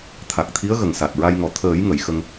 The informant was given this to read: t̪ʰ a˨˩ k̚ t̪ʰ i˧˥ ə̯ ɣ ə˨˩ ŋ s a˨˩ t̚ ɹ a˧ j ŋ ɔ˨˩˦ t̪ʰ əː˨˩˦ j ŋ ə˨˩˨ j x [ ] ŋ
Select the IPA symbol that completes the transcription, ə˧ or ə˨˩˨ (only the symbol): ə˧